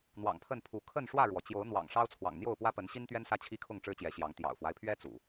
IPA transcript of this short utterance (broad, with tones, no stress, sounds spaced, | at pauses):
n̪ w ɑ̰˨˩ ŋ pʰ ə˥˨ n pʰ u˨˦ kʰ ə˥˨ n ʂ w ä˥˨ ɻ w ɔ˩ t͡ɕ j o˨˦ ʊ̯ n̪ w ɑ̰˨˩ ŋ ʂ ɑ˦ ʊ̯ t͡sʰ w ɑ̰˨˩ ŋ n̪ j o˥˨ ʊ̯ p w ä˦ p ə˨˦ n ɕ i˦ n t̪ ɥ ɛ˦ n s ä˦ t͡ɕʰ i˦ kʰ ʊ˥˨ ŋ ʈ͡ʂ ɻ̩˦ t͡ɕ j ɛ˨˦ ɕ j ɑ˨˦ ŋ t̪ j ɑ̰˨˩ ʊ̯ f w a˦ ɪ̯ pʰ ɥ ɛ˦ t͡s ṵ˨˩